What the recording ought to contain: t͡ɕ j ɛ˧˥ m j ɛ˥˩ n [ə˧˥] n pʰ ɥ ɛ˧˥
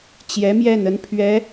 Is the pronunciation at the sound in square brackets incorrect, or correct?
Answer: correct